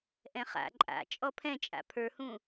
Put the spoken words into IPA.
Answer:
ʔɛ̃χa̰ ǃʼa̰ t͡ʃʼɔpʰɛ̃t͡ʃʼa̰ pʰə˞hũ

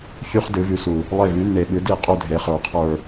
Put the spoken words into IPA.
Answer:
çy˥χ dɨ˨˥vy˨˥su˨ | lˠe˦˨vy˨˥nːe˨ɓɨ˨˥ di˦˨ qʼu˥dʱe˨˥χə˞˨qʰə˞˦˨

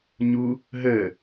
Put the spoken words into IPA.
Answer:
ɲu | ɦəː

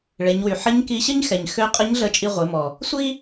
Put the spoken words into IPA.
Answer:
ɭe˩˧ɲwy˩ ħə˧˥ɲki˧ɕə˥ɲxɛ˩ɲ xø˧˥qʼə˧˥ɲɮə˧ t͡ʃʼi˧ʁʷe˩˧mɔ˩ | sʷi˥

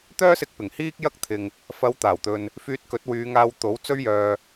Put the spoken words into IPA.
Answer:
t̪œː˥sɪ˧k̚pɪ˨˩ŋ hiː˥k̚jɐ˥k̚ t̪ʰɪ˨ŋ | fɐ˨˧wt̪aː˨˩wt̪ɵ˨n | fyː˧t̚kɵ˨˥t̚wyː˨˧ ŋaː˧wt̪o˨˥w t͡sɵ˥ɥjœː˧

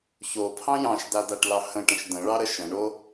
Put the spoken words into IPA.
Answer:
çopʰɑ̃ jɑ̃ʃdadaʈlɑ hə̃ʈə̃ʃ də̃ɭɑɾə ʃə̃ɳo

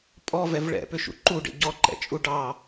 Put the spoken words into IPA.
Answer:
pʼɔvɛv ɭɛ̰pʏʃṵ ǃuɖḛ ɟɔǃɛ̰t͡ʃʼu ɖɑ

